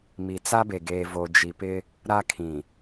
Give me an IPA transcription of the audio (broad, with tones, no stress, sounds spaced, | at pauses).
m i˨ t͡s a˦ b e˨ ɡ eː˨ v o˨ d͡ʒ i˨ p ɪ˦ | ɾ a˦ kʰ ĩ˨